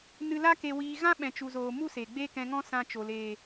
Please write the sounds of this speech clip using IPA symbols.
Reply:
n ɨ˧ l a˦ k e˧ w iː˧ ɣ ã˦ ɓ ɛ̃˨ t͡ʃ u˨ z oː˨ m u˦ s e˨ ɡ͡b e˦ k ɛ̃˧ ŋ ɔ̃˦ s ã˧ t͡ʃ o˨ l eː˨

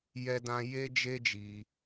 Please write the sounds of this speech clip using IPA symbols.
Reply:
j ɛ˦ d ã˦ j e˦ d͡ʒ e˦ d͡ʒ i˧

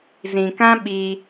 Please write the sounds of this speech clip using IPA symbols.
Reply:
z ĩ˨ k ã˦ ɓ i˦

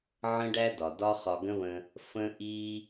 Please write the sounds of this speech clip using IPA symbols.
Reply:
ʕ ə̃˥ ɖ æ˥ d ɒ˩ d ɒ˥ χ ɒ˧ ɡ ə̃˥ β ə̃˧ | f ə̃˥ ʔ i˥

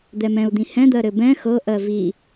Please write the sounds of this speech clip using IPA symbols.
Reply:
d̪ ɛ m ɛ̃ u̯ d̪ ĩ h ɛ̃ d̪ ɜ ɾ ɘ b ɛ̃ x ɤ ʔ ɜ v i

